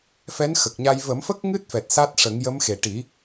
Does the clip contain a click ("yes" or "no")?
no